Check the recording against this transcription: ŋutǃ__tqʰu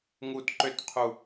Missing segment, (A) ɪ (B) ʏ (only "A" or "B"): B